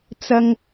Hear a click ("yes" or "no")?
no